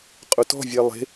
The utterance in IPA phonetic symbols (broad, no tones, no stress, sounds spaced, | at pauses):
qʼ ʊ t ɔ̤ vʲ ɛ lˠ e̤